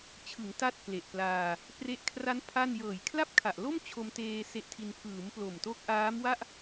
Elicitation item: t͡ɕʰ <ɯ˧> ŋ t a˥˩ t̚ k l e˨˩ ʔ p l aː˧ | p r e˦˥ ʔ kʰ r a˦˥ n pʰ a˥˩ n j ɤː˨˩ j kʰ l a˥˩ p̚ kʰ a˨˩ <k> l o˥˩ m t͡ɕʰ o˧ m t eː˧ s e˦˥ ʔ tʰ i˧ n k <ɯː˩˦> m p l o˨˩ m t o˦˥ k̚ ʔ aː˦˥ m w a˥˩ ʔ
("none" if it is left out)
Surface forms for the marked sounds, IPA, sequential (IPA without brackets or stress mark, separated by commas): ɯ˩˦, ʔ, ɯː˩˦